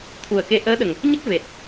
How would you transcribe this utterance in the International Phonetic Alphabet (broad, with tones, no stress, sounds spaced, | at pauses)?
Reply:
t̪ʰ u˨˩ ə̯ k e˧ ʔ əː˧˥ ɗ ə˨˩ ŋ | ɲ ə˦˥ k̚ v e˨˩ t̚